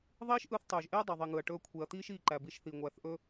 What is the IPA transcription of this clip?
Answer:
ðˤ iː˦ ʃ ʔ ɯ˧ θ tˤ ɵː˨ ʒ ʔ eː˦ dˤ a˨ ðˤ i˨ ŋ ɯ˨ ɐ̯ ʈ ɵː˧ kʷʰ e˨ ɐ̯ t̪ iː˦ ʃ iː˧ ǃ æ˨ b i˧ ʃ θ i˨ ŋʷ æ˨˦ θ ʔ ɵ˦

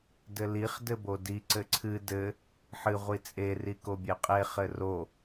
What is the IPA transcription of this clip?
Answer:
d ɘ l i χ d ɘ b o d i ǀ ɘ ǀʰ ɨ d ɘ | ħ ɨ ʁʷ i t͡sʼ e r i k o bʲ e qʼ e χ ɘ r o

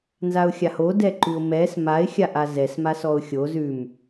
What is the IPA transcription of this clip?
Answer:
n z a ʊ̯ xʲ a h o d ɛ ǃ ʉ ʊ̯ m ɛ s m a ɪ̯ xʲ a ʔ a z ɛ s m a s ɔ ʊ̯ xʲ o z ʉ m

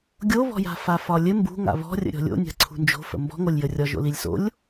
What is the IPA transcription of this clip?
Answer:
ɡʲ o β ɔ̤ j a̤ f a f ɒ lʲ ɘ m b ṳ ŋ a̰ β ɔ̤ rʲ ə̰ ɾʲ ɔ̤ lʲ o̰ nʲ a̤ ǀʰ ṳ n d͡ʒ o̤ f ə̰ m b ɔ̤ ŋ o lʲ j ə rʲ ɒ ʒ o̰ l i lʲ s o̰ lʲ

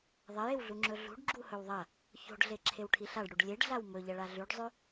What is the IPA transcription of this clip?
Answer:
ðˤ ɐ j e w ɮ u ŋ͡ǁ ɵ ɮ ṳ ɖ ɡ͡ǁ u h ɵ w ðˤ ɐ | ç o̤ ɖ ɮ e ǁʰ e w ʈʰ i ɬ a ɖ ɽ u ɖ lʲ e ɖ ɮ a w m ɵ ʎ ɐ ɭ a ɮ ʉ ɖ zˤ ʉ

